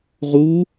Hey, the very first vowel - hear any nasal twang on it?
no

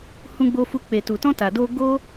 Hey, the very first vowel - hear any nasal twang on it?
yes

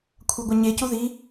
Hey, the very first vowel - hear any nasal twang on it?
no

